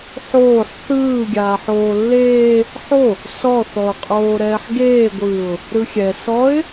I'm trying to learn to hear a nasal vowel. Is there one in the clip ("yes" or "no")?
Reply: no